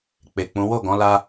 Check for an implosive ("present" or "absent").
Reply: absent